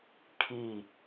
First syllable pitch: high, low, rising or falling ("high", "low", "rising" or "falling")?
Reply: falling